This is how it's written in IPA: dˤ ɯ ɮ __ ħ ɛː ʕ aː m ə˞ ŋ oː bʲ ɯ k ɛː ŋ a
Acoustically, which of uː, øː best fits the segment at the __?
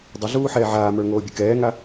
uː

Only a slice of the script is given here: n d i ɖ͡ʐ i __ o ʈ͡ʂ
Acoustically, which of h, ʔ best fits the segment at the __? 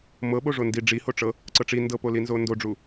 h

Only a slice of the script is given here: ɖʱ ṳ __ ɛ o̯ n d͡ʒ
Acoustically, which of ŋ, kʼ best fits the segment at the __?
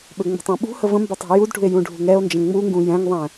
ŋ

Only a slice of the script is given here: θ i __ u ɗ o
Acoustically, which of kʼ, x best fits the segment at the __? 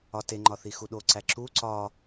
x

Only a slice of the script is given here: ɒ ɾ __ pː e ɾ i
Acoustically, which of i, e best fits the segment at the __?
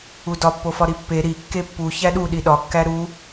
i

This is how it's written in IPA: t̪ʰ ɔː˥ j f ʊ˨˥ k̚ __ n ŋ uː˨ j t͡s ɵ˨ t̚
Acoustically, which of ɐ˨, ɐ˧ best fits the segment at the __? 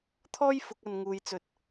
ɐ˧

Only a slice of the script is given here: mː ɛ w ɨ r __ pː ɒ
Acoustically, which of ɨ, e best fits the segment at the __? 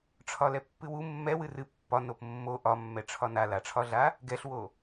ɨ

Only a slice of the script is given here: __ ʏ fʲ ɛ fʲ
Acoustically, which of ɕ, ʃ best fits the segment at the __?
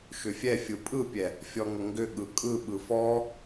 ʃ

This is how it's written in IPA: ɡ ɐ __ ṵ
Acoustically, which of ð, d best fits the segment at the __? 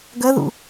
ð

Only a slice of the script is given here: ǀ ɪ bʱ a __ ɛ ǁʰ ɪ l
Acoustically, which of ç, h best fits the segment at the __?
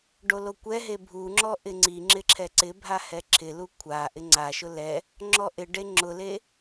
h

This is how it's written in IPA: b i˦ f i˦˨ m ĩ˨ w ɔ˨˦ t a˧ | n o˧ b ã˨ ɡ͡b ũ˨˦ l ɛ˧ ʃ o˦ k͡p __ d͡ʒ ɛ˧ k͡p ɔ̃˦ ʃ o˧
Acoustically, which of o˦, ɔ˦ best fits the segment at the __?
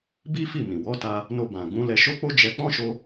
o˦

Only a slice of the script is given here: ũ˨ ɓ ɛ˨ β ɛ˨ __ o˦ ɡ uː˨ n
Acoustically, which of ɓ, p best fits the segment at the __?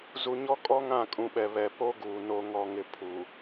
p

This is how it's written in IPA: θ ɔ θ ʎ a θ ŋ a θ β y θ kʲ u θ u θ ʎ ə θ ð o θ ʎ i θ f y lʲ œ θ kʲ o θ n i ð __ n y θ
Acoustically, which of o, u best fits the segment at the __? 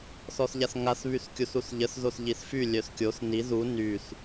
u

